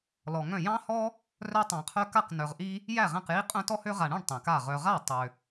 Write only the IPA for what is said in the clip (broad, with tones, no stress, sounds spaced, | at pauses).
l ɔ˨ ŋ œ̃˥˩ j ɑ̃˦ h ɔ˦ | r œ˦ tˤ ɑ̃˨ qʰ œ˦ k a˥˩ q n œ˨ ʁ ʔ i˦ | j æ˥˩ ʁ æ̃˥˩ q j i˦ qʼ œ̃˦ t ɔ˦ h ø˦ ʁ a˨ ɳ œ̃˥˩ ɳ tˤ æ̃˨ k a˥˩ ʁ œ˨ ʁ a˥˩ tˤ ø˨